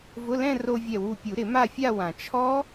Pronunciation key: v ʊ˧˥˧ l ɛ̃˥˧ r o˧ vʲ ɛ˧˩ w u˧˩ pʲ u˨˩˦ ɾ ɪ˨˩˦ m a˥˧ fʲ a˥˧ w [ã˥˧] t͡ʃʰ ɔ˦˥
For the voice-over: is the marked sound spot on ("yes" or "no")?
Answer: no